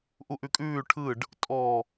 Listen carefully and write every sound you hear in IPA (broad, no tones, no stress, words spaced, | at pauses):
ʔuʔʉkʼʉː ʈʰɯɖ | tʼɔ